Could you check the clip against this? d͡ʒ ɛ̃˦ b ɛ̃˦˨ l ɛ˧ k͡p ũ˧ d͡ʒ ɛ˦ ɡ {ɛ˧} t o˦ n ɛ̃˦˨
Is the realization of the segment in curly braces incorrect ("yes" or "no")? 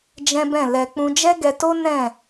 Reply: no